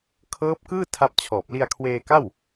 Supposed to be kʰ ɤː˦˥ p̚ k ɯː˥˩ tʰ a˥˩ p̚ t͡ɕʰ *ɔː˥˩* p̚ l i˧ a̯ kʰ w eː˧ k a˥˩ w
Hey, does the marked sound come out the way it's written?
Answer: no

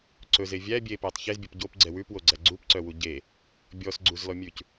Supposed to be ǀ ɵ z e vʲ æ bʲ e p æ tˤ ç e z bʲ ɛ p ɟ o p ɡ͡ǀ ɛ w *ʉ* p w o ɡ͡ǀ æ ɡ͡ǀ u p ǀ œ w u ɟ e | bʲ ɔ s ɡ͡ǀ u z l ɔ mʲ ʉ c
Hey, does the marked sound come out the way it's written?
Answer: yes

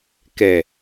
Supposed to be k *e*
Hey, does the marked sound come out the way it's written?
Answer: no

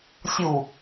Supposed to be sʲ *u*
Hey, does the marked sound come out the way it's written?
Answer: yes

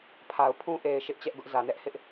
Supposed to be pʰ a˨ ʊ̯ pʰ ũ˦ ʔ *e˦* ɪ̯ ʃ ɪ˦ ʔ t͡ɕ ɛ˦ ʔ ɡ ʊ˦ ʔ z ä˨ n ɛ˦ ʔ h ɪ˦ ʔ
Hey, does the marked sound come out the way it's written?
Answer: no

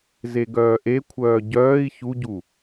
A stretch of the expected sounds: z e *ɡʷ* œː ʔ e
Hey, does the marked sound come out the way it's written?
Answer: no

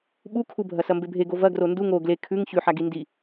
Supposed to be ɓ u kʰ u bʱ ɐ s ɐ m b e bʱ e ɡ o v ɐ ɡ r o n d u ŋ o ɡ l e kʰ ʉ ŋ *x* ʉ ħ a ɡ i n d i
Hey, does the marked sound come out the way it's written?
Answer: no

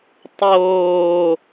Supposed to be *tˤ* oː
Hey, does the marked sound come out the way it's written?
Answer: yes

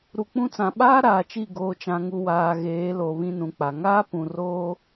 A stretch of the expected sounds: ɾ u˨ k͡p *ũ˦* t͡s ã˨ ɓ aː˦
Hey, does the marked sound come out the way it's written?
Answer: yes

